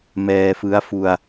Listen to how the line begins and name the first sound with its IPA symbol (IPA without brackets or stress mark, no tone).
m